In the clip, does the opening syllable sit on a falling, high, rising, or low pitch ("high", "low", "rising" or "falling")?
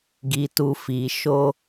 low